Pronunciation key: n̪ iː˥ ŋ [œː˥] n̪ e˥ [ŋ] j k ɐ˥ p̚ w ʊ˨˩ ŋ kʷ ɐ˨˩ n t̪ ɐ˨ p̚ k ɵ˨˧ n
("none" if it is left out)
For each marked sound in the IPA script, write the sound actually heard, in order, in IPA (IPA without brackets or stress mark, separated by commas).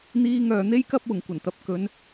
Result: œː˧, none